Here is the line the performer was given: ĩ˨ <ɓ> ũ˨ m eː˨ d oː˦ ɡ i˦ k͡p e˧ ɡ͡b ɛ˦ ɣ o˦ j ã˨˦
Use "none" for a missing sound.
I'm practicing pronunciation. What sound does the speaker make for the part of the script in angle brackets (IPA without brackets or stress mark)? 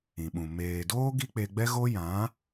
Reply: ɓ